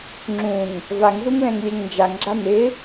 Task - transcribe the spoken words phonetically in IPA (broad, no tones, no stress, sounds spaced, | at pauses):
ŋ͡ǁ ũ ŋ | v a ŋ z u ŋ l ɛ̃ ŋ lʲ ɛ ŋ n d͡ʒ a ŋ ɡ͡ǁ a n̪ ɪ